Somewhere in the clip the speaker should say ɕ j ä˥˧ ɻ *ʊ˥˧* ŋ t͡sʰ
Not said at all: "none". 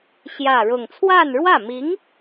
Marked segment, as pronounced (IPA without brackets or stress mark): ʊ˥˧